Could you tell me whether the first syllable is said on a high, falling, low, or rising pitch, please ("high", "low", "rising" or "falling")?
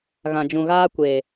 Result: low